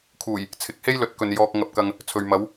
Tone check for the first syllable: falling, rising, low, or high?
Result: low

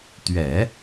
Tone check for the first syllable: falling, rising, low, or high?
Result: low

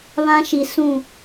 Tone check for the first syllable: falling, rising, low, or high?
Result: high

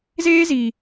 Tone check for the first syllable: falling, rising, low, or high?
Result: high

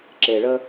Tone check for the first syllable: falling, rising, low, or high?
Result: low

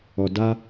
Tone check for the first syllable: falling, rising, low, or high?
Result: low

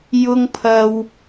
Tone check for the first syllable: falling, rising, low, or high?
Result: high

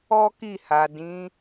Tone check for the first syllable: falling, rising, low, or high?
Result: high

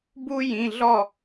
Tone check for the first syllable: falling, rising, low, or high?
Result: high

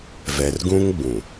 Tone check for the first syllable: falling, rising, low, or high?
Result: low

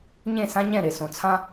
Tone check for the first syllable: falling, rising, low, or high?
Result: falling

